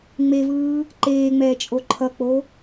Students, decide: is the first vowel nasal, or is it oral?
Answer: oral